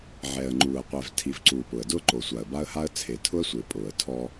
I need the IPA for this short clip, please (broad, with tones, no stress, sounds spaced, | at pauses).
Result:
ʕ ɛː˨ ə̯ ŋ͡ǃ uː˨ ə̯ qʷ ɛ˨ v tʰ i˨ v ǀ uː˨ p ʊ˨ ə̯ d ʊː˦ ǃ o˨ sʷ a˨ ə̯ b a˦ ə̯ h a˦ ə̯ t͡sʰ e˨ tʰ ʊ˦ ə̯ sʷ ɪː˨ pʼ ʊː˨ ə̯ tʰ ɔ˦